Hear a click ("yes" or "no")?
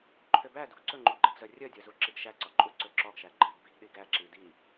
yes